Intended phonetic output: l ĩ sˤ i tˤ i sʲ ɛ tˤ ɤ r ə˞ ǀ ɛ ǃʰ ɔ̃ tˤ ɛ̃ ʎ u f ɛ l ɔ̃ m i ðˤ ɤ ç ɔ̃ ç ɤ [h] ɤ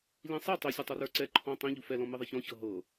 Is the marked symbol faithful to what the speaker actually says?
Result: no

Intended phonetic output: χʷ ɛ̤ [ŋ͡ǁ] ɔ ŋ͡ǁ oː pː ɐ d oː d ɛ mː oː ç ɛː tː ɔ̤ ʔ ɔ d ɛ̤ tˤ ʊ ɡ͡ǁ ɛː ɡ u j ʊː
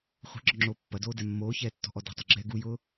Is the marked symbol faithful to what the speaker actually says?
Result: no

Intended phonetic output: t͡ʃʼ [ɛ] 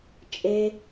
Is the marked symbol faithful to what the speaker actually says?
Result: no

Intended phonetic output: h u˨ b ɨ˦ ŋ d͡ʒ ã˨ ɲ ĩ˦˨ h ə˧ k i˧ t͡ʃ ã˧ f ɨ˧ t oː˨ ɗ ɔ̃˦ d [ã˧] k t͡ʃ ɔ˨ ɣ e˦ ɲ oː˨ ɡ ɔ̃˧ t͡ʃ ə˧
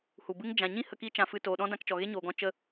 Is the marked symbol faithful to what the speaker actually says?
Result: yes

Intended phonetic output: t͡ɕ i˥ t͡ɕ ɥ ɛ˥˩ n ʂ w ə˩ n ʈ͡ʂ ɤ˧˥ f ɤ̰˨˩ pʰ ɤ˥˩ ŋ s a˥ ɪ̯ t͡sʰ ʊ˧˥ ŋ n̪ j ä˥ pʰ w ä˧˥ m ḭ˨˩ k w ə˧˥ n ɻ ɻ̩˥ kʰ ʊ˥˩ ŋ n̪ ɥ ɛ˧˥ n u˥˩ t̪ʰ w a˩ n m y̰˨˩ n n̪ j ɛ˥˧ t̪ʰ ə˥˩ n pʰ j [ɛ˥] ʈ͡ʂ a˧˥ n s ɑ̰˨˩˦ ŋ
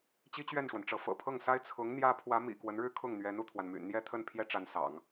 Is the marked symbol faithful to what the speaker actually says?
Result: yes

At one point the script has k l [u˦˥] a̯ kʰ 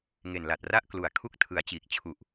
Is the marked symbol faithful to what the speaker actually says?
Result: no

